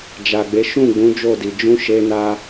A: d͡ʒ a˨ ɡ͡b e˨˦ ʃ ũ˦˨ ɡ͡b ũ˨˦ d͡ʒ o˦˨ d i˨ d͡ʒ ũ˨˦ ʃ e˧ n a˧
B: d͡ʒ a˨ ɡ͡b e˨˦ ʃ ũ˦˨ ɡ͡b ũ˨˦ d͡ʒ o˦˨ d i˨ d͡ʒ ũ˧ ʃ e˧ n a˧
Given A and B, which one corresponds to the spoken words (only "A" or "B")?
A